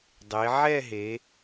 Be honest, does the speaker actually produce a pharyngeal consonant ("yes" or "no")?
yes